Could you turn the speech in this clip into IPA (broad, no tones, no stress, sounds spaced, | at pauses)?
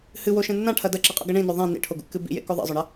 h ɨ w o ʃ ẽ nː ã ʈʰ ɐ d ɐ ǁ i qʼ ṵ ɡ ɐ ɳ ĩ n ɵ ðˤ ẽ n ḭ ʈʰ o ɡ ṵ kː ɨ b ḭ j ḛ k o ðˤ ḭ zˤ ɵ ɳ ɐ